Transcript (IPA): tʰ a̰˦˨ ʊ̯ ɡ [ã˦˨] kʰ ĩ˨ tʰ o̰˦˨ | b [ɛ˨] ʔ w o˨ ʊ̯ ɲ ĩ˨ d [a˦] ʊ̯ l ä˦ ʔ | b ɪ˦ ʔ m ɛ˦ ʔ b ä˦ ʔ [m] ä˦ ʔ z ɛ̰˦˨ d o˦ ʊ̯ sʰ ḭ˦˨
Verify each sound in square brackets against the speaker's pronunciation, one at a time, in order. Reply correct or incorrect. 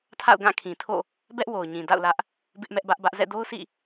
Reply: correct, incorrect, incorrect, incorrect

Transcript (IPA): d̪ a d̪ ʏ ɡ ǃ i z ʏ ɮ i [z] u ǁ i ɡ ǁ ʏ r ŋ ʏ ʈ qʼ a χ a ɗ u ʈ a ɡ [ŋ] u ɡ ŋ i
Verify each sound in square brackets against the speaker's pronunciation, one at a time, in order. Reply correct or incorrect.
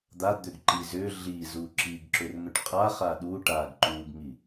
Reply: correct, incorrect

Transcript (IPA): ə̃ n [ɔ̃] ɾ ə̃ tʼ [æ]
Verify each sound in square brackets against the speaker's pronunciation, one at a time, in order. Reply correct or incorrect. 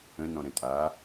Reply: correct, incorrect

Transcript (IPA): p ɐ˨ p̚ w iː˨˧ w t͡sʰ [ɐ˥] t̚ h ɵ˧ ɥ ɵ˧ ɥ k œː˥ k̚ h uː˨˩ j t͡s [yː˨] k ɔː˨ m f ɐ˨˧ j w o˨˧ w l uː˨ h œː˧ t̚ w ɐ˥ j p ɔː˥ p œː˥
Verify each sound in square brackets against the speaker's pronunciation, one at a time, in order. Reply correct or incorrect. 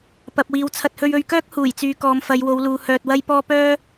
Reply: incorrect, correct

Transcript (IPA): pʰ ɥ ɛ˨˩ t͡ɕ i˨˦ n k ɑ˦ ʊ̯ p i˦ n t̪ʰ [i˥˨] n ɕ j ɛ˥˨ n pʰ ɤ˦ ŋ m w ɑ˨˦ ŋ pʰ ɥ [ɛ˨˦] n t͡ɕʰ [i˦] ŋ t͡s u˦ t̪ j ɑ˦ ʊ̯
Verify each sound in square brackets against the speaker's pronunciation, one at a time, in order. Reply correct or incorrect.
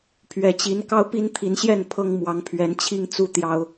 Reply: incorrect, correct, correct

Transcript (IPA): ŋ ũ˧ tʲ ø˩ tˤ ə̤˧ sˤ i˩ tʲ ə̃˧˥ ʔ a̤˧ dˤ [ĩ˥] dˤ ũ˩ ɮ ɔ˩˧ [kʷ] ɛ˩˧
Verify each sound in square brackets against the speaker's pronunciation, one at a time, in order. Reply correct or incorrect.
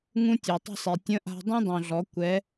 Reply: correct, correct

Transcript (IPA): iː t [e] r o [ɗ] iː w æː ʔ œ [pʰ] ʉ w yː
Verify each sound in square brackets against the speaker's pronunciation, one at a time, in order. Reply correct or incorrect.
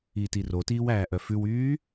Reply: incorrect, incorrect, incorrect

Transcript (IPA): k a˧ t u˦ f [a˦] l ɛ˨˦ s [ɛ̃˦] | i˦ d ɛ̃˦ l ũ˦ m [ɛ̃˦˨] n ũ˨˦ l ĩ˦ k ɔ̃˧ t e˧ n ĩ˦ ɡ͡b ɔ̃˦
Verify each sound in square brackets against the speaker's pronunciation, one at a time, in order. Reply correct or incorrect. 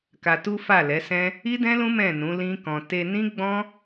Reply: incorrect, correct, correct

